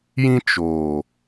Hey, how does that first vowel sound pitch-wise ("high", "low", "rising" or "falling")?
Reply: high